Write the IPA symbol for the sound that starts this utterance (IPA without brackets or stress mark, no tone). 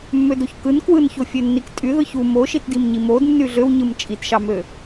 mː